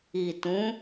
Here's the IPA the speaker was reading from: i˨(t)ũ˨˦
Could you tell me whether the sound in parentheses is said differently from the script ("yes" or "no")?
no